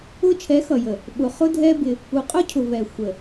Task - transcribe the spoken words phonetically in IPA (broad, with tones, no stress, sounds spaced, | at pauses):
ʊ˧ t͡ʃʰ ɛ˨˦ x ʌ˨ j ə˨ | ɓ ʊ˨ χ ʊ˦ dʱ ɛ˦ b ɪ˧ | u˨ qʼ ʊ˦ cʰ ʊ˨ v ɛ˨ xʷ ə˨